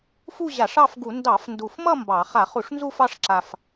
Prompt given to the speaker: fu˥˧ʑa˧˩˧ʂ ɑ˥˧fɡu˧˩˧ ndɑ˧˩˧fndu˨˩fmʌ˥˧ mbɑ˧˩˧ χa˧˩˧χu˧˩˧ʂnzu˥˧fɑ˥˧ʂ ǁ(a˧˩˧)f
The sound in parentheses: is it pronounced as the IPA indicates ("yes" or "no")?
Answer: no